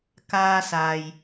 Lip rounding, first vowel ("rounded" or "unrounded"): unrounded